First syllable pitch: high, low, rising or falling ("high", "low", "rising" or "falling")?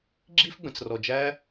high